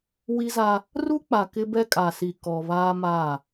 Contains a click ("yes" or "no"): no